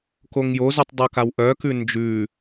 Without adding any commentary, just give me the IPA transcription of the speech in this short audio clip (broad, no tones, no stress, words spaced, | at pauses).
koŋjozʉtˤ dˤokawʔœkʉ nd͡ʒʉ